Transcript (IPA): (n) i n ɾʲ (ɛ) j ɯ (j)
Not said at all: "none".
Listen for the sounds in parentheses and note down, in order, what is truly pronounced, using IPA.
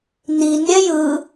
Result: n, ɛ, none

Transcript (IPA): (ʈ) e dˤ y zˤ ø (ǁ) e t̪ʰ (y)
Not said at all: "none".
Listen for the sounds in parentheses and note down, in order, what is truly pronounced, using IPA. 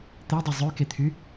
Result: t̪, k, y

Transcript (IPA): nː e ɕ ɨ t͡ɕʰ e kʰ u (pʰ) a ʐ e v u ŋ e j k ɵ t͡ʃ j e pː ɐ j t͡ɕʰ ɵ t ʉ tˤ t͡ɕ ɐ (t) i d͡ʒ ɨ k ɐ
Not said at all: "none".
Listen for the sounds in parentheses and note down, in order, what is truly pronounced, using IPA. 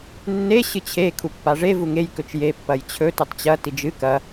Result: pː, t

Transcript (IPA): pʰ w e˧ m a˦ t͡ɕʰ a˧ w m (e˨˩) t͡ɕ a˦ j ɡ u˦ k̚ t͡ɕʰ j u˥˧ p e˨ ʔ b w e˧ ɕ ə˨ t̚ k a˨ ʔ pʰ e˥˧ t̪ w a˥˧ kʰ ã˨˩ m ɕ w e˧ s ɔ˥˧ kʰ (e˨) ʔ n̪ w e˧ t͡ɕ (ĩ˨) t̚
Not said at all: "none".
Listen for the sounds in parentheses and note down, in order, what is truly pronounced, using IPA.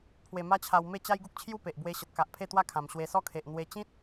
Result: e˥˧, e˨, ĩ˦

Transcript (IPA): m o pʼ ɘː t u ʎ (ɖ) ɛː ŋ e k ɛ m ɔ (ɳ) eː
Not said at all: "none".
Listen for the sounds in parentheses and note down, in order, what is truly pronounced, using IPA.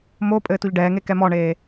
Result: ɖ, ɳ

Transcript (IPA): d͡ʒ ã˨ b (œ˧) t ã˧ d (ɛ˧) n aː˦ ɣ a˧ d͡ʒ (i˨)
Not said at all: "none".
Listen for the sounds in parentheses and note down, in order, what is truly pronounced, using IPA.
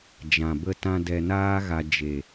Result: ə˧, ɛ˧, e˨

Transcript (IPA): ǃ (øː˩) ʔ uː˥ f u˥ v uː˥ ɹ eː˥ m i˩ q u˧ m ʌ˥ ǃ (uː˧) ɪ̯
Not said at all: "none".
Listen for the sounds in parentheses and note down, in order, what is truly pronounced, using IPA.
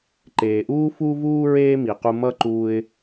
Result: eː˩, uː˧

